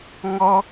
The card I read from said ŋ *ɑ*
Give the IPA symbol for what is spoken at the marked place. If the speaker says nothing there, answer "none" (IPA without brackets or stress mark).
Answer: ɔ